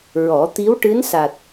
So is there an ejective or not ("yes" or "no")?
no